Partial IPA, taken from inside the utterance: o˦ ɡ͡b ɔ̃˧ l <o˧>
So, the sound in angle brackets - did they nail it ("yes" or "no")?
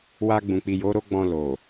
no